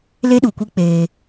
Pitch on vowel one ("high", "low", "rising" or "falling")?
high